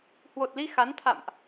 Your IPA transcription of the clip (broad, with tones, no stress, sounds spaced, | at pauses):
h w o˨˩ t̚ l i˧ x a˨˦ n t̪ʰ a̰˧˨ m ʔ